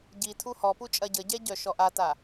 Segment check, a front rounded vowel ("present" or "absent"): present